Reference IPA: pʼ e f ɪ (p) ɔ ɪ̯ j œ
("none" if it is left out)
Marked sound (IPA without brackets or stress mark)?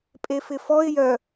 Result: f